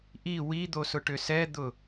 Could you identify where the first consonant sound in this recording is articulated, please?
glottal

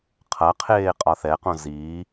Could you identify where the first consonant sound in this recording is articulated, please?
uvular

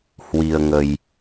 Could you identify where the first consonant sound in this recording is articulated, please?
glottal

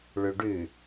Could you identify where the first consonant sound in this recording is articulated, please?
retroflex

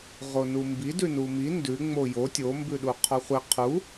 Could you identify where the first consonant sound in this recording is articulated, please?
uvular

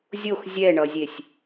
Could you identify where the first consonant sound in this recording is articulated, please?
alveolar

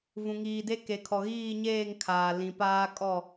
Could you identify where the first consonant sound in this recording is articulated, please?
labial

